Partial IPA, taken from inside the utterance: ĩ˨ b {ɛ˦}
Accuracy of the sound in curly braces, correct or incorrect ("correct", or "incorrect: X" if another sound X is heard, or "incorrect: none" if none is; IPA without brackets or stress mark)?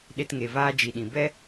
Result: correct